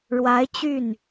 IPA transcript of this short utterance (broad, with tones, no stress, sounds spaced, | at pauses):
ɻ w a˧˥ ɪ̯ t͡ɕ y˥˩ n